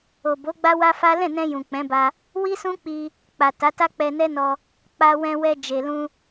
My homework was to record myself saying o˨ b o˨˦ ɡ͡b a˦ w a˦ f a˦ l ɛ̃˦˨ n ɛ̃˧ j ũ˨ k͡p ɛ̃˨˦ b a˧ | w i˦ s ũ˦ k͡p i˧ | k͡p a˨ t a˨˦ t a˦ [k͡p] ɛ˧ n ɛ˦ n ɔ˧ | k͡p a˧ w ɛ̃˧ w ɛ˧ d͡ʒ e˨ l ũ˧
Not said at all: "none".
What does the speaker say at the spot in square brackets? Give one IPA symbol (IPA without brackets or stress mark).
k͡p